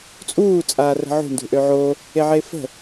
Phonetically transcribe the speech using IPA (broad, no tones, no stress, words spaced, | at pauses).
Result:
t͡sʼuː t͡sʼaːrə̤ʕṳ ndṳʔøʕo | eʕeːfə̤